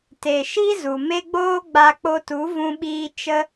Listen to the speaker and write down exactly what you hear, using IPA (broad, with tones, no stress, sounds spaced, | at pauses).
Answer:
t e˨ ʃ i˦ z u˨ m e˦ ɡ͡b oː˦ ɡ͡b a˧ k͡p o˧ t u˨˦ v ũ˧ ɓ iː˧ t͡ʃ ə˦